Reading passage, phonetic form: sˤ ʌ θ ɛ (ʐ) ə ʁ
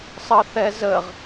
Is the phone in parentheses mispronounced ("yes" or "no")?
yes